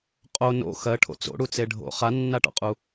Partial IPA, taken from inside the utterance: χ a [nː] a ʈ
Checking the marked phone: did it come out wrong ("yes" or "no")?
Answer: no